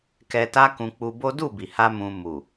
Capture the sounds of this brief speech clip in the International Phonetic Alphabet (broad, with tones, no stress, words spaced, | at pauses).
kɛ˧ta˦ kũ˧k͡pu˧bo˦ du˦˨bi˨ha˧ mũ˧ mu˨